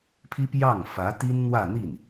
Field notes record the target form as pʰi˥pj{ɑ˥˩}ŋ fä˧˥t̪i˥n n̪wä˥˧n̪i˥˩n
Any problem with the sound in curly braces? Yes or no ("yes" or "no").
no